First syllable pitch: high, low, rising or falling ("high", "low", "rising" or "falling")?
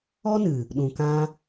high